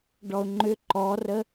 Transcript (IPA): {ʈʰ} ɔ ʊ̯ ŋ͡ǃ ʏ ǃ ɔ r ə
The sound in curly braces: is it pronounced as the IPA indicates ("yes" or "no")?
no